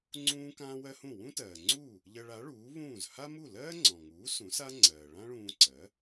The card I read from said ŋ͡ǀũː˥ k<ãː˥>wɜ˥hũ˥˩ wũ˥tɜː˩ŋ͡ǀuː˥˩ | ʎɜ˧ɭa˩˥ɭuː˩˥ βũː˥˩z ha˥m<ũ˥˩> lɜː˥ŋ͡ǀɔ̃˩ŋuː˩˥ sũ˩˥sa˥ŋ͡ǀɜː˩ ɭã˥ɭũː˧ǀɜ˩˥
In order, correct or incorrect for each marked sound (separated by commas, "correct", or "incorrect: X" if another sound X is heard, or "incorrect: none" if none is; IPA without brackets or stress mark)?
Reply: correct, incorrect: u˥˩